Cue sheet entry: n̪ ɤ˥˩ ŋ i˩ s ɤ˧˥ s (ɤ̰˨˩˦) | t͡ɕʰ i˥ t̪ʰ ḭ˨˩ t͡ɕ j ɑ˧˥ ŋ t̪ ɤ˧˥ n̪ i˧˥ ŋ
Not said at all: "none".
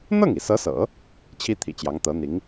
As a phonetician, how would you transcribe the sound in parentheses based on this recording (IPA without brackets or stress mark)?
ɤ̰˨˩˦